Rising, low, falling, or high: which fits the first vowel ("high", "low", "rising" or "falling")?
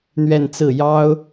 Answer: falling